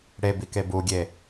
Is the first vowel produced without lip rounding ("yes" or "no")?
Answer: yes